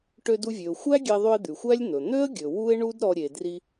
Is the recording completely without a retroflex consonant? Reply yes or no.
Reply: no